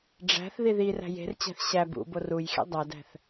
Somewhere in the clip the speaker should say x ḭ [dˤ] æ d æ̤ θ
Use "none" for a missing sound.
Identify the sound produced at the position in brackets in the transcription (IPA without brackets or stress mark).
dˤ